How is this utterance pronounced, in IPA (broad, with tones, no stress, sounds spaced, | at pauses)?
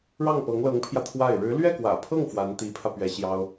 ɻ ɑ˥˩ ŋ p ɤ˧˥ ŋ l ɤ˧˥ ŋ pʰ j ä˧ t̪ʰ w a˥˩ ɪ̯ ɻ ɻ̩˧˥ l ɥ ɛ˥˩ k w ä̰˨˩ pʰ ɤ˥˩ ŋ f w a˧˥ n t̪ i˧˥ pʰ ä˧ p ɥ ɛ˧˥ ɕ j ɑ˥ ʊ̯